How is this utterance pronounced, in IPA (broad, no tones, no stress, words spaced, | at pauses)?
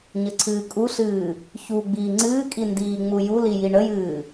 ɲəǀʰɨːkʼuɬɨː | çu ɡ͡biːŋ͡ǀɨːkʼi ndiːŋ͡mujuli jiɳəjɨː